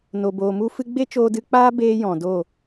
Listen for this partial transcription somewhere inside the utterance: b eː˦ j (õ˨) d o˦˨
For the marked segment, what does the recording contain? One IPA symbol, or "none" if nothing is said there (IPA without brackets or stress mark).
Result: ɔ̃˨